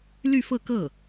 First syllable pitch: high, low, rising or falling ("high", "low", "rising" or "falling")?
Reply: falling